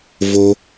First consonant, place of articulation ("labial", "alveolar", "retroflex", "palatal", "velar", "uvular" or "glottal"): labial